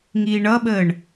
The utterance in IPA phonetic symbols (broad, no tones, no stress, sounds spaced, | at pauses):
ŋ iː ɳ ʌ ɓ əː ɳ